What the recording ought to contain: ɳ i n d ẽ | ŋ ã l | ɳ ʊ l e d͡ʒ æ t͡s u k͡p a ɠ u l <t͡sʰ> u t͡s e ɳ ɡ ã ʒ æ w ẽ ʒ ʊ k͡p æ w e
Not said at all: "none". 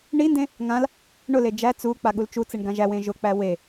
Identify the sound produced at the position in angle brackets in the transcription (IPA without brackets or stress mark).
t͡ʃ